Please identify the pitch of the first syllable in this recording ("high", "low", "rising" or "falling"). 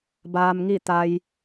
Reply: low